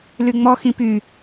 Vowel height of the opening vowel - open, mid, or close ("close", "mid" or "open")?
close